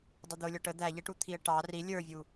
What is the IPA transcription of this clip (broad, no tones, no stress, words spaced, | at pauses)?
dˤɪd̪ʊ lʲɔʈə d̪æʎɛʈut̪ʰiə̯ ʈɑ ri lʲə˞vʲu